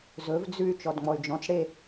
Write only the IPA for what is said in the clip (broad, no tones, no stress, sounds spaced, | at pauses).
z ɵ v d͡z ʉ y̯ t͡ʃ ɔ d ŋ͡m ɔ y̯ d͡ʒ ɔ̃ t͡s ɽ e